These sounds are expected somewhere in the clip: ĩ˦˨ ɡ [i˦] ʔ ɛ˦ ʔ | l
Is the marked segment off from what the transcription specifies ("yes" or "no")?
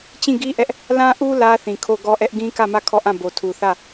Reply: no